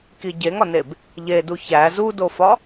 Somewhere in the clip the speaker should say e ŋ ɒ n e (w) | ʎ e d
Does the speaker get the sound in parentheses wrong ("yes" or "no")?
yes